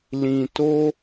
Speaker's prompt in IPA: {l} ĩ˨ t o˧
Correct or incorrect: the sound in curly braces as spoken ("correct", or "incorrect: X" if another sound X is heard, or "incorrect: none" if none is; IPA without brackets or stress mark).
correct